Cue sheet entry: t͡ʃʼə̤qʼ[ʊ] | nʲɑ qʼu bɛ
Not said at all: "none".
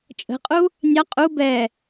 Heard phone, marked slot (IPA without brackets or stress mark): u